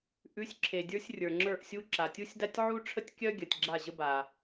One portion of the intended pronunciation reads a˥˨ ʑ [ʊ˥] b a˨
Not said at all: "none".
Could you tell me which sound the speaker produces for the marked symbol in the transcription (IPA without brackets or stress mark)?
ə˥